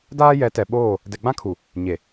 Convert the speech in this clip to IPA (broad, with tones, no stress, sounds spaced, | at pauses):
d aː˦ j ɛ˨˦ t ɛ˨ ɓ oː˦˨ | d ɛ˨ ɡ͡b ã˦ kʰ u˨ | ɲ e˨